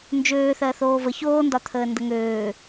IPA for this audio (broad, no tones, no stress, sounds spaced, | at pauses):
n d͡ʒ øː θ ɜ θ oː v ə ç oː n d ɒ t̪ʰ əː n d ə ŋ øː